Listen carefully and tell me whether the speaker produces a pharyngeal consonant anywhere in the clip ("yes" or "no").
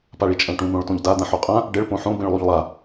yes